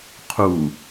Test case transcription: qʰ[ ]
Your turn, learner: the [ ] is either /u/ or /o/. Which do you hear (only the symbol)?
u